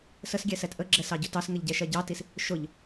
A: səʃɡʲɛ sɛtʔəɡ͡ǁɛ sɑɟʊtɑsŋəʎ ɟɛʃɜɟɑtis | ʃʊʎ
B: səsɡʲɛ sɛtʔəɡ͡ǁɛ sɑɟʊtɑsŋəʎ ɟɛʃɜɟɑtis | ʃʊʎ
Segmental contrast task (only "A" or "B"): B